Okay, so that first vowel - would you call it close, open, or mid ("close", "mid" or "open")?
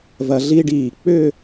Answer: open